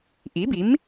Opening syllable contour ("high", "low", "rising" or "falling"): rising